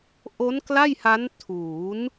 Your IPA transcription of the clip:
ʔ o˦˥ n k l a˥˩ j h a˦˥ n tʰ uː˩˦ n

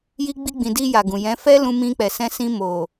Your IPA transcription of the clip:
j i˧ ɡ͡b i˧ ɡ͡b ĩ˨ d i˧ j a˨ ɡ ũ˨ j ɛ̃˨˦ f ɛ˦ l ũ˧ m ĩ˧ k͡p ɛ˨ s ɛ̃˧ s ĩ˧ m o˨

